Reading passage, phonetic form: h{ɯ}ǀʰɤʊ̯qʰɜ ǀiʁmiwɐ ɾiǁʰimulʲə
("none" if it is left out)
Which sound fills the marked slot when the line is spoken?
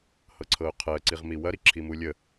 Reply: ɤ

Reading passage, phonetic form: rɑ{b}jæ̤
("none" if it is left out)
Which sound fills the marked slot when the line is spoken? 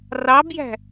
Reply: b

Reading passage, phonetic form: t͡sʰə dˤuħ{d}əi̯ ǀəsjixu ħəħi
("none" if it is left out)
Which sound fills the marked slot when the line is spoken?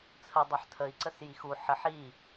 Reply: tʰ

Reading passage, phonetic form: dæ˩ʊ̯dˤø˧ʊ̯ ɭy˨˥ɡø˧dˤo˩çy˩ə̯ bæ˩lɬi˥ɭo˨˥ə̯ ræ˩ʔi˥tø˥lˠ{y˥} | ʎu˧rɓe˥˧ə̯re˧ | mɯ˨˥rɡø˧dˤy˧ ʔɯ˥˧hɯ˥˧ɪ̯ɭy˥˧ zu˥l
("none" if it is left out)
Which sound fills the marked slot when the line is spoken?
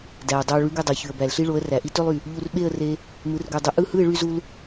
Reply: y˩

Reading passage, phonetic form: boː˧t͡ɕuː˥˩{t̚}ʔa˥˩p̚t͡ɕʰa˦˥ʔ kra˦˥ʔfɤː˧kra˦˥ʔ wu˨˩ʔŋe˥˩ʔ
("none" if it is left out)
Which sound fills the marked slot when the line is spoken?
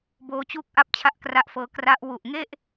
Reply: k̚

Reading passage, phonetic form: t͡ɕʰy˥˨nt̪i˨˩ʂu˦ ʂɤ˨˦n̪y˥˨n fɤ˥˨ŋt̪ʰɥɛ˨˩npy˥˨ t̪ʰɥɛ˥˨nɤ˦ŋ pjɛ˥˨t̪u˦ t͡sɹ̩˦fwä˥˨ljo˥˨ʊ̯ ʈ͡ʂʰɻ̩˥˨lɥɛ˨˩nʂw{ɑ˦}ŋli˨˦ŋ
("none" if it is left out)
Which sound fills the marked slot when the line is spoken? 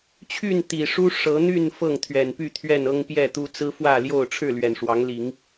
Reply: ɑ˨˦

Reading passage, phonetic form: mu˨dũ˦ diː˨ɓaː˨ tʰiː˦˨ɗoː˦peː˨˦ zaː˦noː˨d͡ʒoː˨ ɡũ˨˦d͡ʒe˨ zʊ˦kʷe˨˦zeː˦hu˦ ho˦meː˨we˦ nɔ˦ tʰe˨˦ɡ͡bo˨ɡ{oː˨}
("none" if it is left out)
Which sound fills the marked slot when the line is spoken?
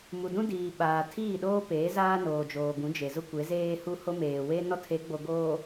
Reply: oː˨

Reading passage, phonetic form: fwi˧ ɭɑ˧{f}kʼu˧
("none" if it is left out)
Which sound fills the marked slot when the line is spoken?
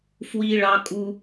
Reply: none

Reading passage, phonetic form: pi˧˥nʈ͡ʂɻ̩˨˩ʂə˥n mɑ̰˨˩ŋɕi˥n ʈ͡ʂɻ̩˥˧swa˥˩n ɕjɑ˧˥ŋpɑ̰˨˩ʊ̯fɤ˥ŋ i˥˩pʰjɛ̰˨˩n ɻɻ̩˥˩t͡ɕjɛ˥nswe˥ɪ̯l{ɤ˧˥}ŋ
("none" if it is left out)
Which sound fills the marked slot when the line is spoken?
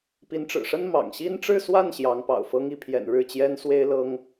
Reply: ɤ˥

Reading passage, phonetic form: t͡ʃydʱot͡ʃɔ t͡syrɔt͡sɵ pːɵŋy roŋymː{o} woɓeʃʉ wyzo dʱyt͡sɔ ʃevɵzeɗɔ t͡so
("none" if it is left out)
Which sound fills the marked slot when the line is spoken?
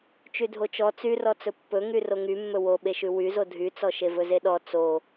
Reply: ɵ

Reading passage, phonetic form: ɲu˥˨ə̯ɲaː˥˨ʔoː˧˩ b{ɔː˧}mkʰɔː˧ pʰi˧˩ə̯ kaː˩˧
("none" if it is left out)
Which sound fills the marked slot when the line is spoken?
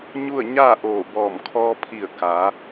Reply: ɔː˧˩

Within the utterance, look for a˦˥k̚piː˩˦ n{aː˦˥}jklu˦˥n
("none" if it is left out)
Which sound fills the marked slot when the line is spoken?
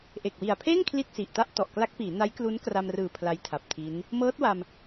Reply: a˦˥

